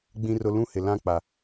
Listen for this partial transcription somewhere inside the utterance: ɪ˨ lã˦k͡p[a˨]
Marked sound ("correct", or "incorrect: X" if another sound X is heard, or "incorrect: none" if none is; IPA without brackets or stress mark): correct